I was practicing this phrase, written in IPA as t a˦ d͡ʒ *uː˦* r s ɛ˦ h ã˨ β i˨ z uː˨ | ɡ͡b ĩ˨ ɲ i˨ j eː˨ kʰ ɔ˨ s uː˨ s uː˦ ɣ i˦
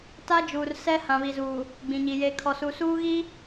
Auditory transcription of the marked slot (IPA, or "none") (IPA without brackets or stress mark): uː˨